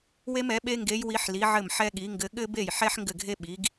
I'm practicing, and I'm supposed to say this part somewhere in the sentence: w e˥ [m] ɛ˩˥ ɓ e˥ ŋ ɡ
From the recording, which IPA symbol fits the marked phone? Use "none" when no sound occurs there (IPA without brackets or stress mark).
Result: m